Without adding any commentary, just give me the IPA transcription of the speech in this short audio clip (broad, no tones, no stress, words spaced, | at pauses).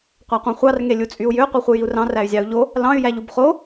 qʷæqʷɑ̃χʷɑr ŋelʲut͡sʼyu̯jø qʷeχʷɯjiu̯rɑ̃ ræy̯zʲɑu̯ʎo | lɑ̃y̯ jæʎubχo